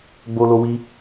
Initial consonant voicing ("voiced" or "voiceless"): voiced